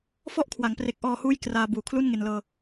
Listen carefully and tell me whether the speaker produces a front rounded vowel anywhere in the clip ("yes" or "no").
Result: no